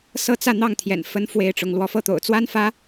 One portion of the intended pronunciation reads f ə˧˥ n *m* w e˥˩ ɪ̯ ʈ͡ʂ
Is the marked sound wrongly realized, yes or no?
yes